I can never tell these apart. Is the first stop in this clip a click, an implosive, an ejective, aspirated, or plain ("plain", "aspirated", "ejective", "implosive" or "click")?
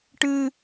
plain